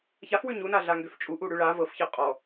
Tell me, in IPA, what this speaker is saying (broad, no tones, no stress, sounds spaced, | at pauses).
ç a f w ʉ ɲ u n a ɮ a ŋ ɡ ø f t͡ʃʼ u ʔ u ɽ ʉ ɭ a v ɤ f ç ɤ qʼ ɔ